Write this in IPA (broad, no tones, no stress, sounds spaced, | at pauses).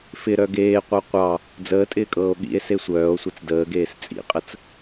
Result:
f ɪ ɾ œ ɡ eː qʷ œ qʷ ɑ | d͡z əː tʼ ɪː kʼ ɤː o̯ ɠ ḭ e̯ s e sʷ œː o̯ sʷ i t͡s d əː ɡ eː s t͡sʼ ḭ qʼ ə t͡s